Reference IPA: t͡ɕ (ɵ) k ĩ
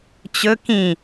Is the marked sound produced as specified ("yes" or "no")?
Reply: yes